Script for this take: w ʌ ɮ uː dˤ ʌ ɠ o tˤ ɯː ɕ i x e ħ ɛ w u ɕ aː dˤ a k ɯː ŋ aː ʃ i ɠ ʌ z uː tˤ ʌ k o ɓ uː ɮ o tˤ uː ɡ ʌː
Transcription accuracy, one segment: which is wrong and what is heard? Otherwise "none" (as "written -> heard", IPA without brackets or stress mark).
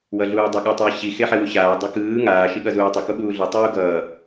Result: none